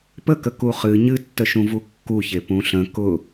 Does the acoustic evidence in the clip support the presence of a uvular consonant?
yes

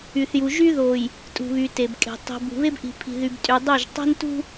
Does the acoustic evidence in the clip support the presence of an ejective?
yes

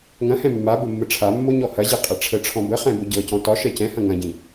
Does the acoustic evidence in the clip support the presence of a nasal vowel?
yes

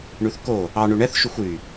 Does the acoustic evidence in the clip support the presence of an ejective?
no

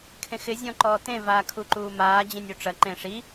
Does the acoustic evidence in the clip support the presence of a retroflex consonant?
yes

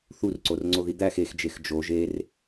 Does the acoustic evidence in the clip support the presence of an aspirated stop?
no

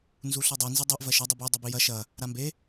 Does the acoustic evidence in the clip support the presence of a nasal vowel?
no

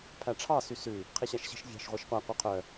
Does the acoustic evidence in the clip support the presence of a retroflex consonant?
yes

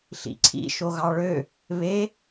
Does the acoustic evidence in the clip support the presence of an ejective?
no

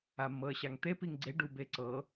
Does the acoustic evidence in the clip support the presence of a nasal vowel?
no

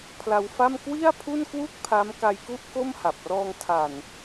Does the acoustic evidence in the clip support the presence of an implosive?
no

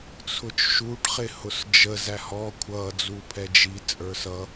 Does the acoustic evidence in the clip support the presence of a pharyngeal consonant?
no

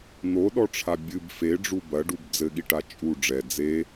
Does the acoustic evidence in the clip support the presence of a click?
no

